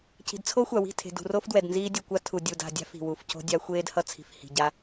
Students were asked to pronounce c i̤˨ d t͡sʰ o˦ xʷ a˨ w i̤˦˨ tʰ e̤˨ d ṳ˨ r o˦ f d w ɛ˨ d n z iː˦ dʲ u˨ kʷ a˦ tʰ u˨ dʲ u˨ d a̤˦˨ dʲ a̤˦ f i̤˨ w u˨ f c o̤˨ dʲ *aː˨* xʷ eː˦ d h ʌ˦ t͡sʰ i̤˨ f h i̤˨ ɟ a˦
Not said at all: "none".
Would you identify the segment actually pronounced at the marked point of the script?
a˨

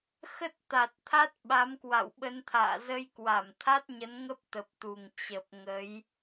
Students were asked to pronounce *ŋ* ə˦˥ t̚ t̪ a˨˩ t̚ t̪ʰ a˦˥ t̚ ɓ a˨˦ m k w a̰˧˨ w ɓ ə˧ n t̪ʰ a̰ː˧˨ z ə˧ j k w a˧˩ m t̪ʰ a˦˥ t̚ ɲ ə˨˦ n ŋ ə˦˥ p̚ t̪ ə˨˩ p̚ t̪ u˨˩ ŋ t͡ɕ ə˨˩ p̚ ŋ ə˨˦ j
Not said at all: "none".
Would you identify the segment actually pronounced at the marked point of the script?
x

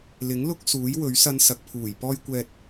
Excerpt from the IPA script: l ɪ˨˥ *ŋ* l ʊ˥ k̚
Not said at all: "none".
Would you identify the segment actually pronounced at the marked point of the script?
ŋ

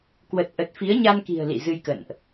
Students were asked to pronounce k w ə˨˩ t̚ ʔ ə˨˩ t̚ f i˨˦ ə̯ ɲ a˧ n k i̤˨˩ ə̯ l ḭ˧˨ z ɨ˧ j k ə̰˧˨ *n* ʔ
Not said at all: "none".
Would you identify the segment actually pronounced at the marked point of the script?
n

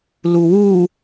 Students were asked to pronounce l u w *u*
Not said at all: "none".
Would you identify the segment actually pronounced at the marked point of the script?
u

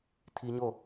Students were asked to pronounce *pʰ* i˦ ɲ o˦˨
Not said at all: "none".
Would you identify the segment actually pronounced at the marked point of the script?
tʰ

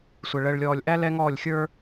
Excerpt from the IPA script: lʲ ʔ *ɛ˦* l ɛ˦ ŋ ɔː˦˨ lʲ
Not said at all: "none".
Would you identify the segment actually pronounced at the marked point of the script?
æ˦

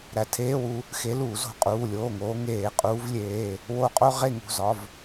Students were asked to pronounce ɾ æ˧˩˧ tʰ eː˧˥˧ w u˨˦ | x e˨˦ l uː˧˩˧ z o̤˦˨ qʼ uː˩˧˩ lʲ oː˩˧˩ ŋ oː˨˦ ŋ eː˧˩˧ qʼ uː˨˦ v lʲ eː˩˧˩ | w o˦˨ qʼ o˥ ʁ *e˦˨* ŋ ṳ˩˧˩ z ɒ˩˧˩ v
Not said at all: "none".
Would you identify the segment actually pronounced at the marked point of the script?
e˦˨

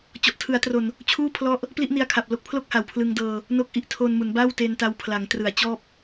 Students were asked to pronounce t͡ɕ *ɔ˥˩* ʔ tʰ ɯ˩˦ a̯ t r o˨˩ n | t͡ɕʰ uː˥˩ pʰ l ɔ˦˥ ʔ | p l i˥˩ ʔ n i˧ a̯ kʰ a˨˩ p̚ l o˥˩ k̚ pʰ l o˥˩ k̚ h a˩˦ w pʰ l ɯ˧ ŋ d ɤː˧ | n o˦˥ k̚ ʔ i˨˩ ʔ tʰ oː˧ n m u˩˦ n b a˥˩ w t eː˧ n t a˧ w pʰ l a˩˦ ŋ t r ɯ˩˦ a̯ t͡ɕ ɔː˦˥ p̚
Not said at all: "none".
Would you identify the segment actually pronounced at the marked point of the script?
ɔ˨˩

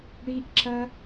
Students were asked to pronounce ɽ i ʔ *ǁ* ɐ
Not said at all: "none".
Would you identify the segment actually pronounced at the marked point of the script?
ǁ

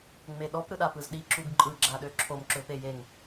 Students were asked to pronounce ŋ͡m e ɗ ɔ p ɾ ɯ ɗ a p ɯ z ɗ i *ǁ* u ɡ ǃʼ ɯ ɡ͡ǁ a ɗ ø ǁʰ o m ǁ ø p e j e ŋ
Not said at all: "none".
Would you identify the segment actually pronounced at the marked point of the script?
ǁ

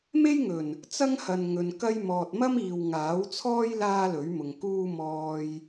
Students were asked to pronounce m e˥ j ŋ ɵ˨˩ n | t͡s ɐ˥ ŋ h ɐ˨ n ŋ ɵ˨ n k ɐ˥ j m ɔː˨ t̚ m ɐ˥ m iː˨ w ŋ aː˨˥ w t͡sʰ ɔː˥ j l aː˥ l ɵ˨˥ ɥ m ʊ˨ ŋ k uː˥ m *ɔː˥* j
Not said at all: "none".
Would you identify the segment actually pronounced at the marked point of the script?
ɔː˧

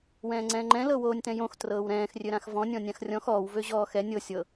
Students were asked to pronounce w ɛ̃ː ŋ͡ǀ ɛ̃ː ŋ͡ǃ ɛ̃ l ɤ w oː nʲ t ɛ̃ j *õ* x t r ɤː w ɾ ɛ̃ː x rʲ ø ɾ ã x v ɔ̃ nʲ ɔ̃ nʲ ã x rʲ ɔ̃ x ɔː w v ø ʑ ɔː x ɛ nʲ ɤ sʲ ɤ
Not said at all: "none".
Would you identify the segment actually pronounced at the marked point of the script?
õ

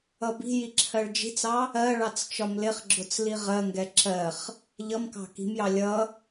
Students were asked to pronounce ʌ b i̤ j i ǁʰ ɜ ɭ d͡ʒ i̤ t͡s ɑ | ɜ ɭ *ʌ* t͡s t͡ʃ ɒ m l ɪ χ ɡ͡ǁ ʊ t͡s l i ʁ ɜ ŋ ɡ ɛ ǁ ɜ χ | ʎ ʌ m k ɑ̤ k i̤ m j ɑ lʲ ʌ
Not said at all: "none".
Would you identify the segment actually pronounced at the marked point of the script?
ɑ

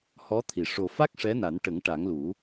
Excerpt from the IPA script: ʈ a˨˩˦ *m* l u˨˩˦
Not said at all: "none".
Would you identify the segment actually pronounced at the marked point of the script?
ŋ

